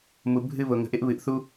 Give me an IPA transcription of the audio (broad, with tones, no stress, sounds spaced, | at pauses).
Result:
m u˧ bʱ ɨ˦ β ʊ˧ ŋ ə̤˧ ʔ ɪ˦ ʔ β ɨ˧ ʔ θ u˦